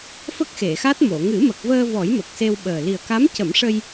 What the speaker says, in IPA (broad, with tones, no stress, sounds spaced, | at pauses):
f ə˦˥ k̚ x e˨˩˨ x a˦˥ t̚ m o˨˩˨ ŋ ɨ˨˩˦ m ə˨˩ k̚ v əː˧ v ɔ˨˩˦ j m ə˨˩ k̚ s e˧ w ɓ əː˨˩ l i˨˩ ə̯ k a˧˥ m c ə˨˩˦ m ʂ ə˧ j